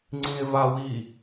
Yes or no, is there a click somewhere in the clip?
yes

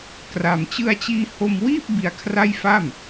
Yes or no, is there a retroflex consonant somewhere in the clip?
no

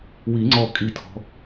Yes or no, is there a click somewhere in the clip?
yes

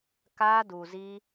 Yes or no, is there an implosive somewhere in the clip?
no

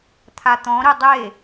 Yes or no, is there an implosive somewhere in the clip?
no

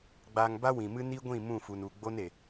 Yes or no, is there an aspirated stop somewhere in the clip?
no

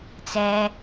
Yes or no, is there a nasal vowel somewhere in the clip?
no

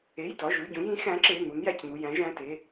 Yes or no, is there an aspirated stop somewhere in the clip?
no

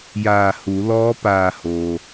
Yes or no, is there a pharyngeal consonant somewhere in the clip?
no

